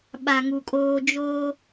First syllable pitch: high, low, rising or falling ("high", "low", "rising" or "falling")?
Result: low